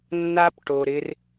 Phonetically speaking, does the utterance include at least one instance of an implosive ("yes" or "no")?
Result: no